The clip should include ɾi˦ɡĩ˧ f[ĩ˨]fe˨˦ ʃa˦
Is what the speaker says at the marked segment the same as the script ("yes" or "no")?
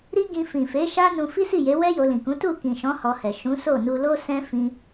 yes